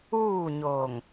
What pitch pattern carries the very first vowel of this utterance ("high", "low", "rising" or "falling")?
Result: falling